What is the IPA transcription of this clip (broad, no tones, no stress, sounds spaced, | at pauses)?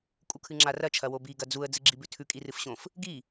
kʼ u kʰ ɨ ŋ͡ǁ a r ɐ t͡ʃʰ ɐ w o b i ɡ ɐ d͡z u ə̯ d͡z ɨ ɡ͡ǁ i b ʉ tʰ ʉ kʼ i r ɨ f ɕ õ f | ɡ i